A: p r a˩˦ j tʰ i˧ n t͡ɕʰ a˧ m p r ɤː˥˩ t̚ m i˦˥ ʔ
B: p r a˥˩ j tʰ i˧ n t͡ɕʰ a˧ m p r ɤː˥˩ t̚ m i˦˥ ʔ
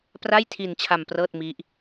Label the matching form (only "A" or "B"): B